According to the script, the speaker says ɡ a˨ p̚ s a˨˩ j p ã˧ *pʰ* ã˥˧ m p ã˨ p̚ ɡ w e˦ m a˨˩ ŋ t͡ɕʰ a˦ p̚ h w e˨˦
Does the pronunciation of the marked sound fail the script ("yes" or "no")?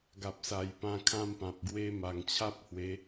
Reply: yes